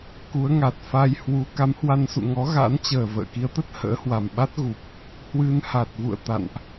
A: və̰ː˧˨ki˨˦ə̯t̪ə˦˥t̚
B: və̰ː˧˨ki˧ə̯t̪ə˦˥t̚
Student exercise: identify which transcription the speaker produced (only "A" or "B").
A